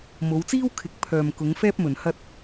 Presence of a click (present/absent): absent